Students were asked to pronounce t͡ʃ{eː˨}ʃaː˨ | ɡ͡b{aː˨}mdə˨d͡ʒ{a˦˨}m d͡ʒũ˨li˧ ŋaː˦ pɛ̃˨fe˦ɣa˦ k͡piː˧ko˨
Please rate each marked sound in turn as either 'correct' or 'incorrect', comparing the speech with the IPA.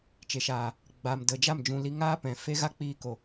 incorrect, correct, correct

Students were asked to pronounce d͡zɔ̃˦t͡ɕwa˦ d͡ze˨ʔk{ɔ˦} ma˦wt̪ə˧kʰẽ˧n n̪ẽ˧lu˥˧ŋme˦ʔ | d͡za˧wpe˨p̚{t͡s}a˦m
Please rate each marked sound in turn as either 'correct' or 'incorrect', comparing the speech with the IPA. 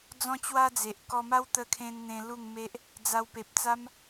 correct, correct

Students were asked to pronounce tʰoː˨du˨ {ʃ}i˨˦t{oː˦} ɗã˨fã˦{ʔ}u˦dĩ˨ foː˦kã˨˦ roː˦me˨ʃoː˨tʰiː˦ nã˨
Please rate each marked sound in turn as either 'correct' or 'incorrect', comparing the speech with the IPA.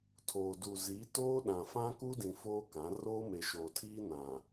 incorrect, correct, incorrect

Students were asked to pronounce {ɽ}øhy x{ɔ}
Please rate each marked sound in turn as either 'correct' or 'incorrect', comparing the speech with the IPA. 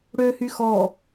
correct, correct

